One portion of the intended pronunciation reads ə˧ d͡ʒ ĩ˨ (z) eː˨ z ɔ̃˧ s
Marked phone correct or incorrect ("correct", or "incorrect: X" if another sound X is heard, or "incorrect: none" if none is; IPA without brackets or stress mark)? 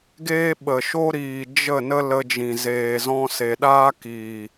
correct